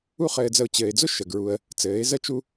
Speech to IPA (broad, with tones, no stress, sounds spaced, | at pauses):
u˦ χ ɘː˧ d͡z ə˧ ʊ̯ t͡ɕ ɘː˨ ɪ̯ d͡z ʊ˦ ʃ ə˨ ɡ ɹ u˧ ə̯ | t͡s ɘː˨˦ ɪ̯ z ə˦ t͡ʃ u˦